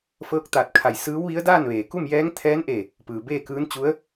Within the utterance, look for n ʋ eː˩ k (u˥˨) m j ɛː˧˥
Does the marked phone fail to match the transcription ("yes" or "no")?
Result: no